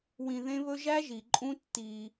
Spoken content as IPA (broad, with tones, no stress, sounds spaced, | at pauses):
w ĩ˨ ð ẽ˦ β ɵ˦ ʒ æ˦ ʒ i˨ ǃʼ ũ˦ tː i˦